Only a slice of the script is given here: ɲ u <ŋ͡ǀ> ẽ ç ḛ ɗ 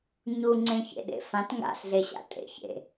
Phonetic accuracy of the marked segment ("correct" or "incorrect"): correct